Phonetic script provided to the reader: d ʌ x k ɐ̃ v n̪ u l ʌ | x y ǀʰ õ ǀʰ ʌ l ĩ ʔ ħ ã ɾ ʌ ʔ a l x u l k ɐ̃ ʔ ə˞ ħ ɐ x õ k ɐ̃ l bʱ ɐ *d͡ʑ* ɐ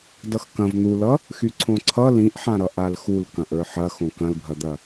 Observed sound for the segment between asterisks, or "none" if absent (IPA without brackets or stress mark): d̪